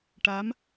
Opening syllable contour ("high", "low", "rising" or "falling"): rising